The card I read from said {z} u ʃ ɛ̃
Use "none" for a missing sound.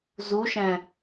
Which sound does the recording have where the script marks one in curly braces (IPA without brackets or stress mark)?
z